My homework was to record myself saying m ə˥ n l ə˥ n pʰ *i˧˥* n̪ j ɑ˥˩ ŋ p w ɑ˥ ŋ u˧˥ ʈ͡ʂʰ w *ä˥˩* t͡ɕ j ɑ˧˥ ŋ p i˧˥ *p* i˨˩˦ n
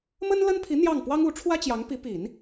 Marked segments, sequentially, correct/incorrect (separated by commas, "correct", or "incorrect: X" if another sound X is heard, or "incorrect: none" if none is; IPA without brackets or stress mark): correct, incorrect: ä˥, correct